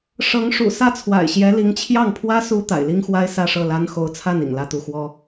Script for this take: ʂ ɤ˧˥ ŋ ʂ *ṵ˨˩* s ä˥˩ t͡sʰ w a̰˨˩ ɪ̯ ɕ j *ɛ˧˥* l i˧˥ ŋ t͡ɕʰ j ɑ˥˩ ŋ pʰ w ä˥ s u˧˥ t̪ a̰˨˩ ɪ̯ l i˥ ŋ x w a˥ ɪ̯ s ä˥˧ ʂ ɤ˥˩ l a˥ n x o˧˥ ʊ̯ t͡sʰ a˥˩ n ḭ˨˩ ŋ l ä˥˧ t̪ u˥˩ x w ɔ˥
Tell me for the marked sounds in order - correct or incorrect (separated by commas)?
correct, correct